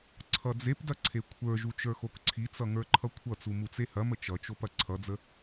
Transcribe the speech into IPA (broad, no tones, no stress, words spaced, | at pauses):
ǀʰʌd͡zepdɐ ǀʰekʷʰə˞ʒu t͡ʃə˞xokǀʰit͡sʌ ŋə˞ǃʰʌkʷʰʌt͡su mut͡sehɐmə t͡ʃʌt͡ʃop ɐǀʰʌd͡zə